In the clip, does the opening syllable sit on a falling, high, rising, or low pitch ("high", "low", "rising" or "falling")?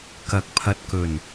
rising